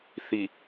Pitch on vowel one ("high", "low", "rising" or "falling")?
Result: low